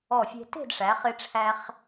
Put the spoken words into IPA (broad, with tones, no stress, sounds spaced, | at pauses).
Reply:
ɔ˧˩ fʲ e̤˧ t e̤˥˧ d ʂ æ˩˧ χ e˧ ʈ͡ʂʰ æ˧ χ